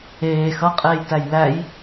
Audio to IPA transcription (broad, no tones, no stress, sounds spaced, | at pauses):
eː x ʌ qʼ eː j t æ j l æ j